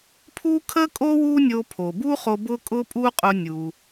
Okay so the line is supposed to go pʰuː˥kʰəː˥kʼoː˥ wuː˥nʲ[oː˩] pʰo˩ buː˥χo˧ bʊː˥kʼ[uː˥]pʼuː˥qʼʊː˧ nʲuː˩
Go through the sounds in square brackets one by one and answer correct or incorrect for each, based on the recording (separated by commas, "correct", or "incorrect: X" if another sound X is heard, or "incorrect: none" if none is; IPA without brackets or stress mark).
incorrect: oː˧, incorrect: ʊː˥